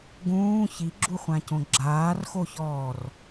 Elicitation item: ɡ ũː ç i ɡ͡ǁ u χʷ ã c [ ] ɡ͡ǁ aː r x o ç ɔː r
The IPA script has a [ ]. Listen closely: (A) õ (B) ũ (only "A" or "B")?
A